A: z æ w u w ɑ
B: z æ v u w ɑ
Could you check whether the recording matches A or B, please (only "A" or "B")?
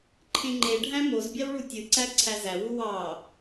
A